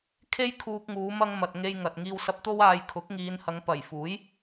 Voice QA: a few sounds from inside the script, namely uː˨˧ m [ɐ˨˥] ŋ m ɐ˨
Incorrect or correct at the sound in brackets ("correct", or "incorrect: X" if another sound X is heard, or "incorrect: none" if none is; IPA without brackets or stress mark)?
incorrect: ɐ˧